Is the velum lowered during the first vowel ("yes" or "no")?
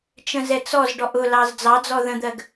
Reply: yes